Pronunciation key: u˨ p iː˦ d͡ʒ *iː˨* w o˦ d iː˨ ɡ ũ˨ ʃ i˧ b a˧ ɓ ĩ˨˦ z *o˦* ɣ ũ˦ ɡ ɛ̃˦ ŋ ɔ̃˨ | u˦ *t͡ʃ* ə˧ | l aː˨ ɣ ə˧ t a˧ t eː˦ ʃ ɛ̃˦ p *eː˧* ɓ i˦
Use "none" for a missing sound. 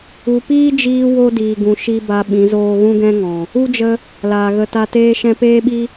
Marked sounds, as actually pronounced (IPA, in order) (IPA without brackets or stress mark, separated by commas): iː˧, oː˦, d͡ʒ, eː˦